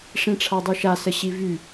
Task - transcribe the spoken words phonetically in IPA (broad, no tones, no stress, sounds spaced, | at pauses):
ʂ ĩ ʈ͡ʂʰ a dˤ y ʃ a s ə ɕ i v y